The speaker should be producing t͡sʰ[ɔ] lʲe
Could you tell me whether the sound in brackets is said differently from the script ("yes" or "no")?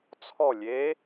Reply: no